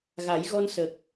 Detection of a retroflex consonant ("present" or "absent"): absent